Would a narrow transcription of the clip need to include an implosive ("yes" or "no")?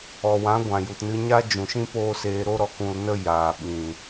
yes